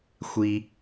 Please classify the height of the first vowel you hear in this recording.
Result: high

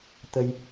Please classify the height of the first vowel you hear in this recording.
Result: mid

